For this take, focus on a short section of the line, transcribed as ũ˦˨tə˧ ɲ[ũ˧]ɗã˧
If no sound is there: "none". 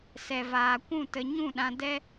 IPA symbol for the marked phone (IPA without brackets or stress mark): ũ˦˨